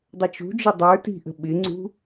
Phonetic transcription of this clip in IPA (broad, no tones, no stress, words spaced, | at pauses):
dˤət͡ʃṳd͡ʒɪ dˤə˞ ti̤ʔə̤ ɓɪŋ͡ǀṳ